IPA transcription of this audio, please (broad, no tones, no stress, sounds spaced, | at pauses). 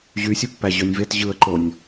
ʑ y sʲ u pː æ ʑ ø nʲ v e t ʑ ɯ ə̯ ǃ o nʲ